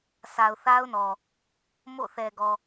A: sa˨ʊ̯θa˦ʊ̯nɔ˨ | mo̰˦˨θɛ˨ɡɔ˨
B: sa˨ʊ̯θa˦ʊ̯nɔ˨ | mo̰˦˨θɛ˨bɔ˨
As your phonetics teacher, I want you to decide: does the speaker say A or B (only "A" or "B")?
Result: A